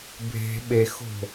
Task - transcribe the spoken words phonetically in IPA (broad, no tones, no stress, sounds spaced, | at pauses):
bʱ e̤ ɓ e x o̤